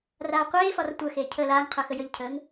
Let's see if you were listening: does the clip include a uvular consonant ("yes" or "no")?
yes